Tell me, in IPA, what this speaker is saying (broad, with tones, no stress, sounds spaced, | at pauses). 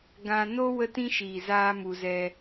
ɡ ã˧ n o˦ w ə˦ t ĩ˦ ʃ iː˨ z aː˦ m u˧ z ɛ˦